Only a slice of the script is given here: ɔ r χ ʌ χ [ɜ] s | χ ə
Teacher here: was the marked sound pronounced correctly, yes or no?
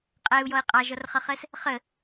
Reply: yes